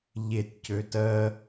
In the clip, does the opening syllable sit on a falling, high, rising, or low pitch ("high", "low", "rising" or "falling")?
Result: low